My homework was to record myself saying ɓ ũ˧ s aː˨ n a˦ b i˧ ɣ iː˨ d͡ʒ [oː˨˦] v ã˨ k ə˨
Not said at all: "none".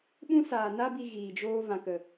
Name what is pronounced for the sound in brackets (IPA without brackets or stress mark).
oː˧